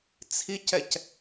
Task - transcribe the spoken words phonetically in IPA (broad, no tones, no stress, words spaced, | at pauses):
t͡sʰicɛc